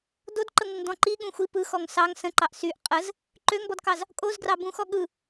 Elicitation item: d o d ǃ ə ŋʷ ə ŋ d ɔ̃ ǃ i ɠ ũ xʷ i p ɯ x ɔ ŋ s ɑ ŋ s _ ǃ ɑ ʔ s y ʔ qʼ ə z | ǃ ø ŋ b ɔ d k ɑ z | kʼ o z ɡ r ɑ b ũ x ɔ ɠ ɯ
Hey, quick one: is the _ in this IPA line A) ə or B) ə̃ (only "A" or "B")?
B